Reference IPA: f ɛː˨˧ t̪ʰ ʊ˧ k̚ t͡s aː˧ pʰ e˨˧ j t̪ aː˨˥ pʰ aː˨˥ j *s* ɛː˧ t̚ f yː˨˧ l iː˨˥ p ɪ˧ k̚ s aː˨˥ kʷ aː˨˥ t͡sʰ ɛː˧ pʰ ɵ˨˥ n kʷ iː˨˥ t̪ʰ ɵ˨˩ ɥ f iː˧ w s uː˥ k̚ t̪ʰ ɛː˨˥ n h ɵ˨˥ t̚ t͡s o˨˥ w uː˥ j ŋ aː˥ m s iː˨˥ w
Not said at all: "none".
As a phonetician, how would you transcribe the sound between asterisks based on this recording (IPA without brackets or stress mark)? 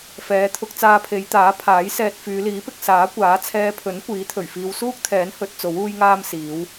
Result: s